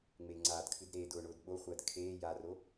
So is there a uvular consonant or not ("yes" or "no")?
yes